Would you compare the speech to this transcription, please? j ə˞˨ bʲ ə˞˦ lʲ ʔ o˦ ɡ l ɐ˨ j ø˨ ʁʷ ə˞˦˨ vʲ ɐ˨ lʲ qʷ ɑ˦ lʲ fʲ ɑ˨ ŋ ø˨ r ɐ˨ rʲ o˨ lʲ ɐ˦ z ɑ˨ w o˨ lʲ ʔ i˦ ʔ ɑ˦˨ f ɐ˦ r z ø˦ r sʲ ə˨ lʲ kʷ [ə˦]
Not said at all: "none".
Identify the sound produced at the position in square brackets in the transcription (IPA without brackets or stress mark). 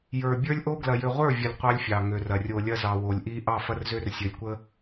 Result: ə˦